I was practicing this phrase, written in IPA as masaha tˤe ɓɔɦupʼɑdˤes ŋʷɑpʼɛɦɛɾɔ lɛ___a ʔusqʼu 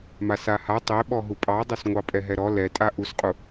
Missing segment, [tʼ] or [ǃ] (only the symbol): tʼ